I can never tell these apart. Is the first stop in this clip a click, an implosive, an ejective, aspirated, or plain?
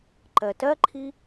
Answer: click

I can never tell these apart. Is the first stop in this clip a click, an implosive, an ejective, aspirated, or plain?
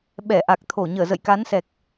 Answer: implosive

